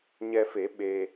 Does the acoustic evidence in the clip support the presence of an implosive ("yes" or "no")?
yes